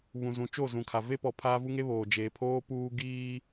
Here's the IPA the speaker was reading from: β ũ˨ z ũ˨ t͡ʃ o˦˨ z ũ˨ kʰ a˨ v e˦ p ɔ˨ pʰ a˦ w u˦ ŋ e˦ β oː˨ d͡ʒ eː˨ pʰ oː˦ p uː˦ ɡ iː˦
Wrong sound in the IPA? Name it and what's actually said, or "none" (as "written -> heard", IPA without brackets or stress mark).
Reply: w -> v